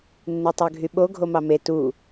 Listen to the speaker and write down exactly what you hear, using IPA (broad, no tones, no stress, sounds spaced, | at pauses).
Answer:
nː e tˤ ø ɡʱ y ɓ o ɡʱ o m ɑ m e t u